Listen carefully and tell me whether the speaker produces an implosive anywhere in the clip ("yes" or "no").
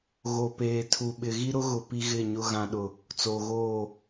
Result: yes